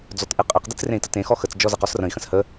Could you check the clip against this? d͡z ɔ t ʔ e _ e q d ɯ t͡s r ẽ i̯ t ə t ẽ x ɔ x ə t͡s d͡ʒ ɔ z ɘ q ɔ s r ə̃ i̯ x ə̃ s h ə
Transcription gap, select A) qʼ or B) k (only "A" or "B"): A